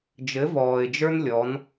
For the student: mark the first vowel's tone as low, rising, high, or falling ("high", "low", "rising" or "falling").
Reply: rising